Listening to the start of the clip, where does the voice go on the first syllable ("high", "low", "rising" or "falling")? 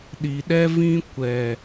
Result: low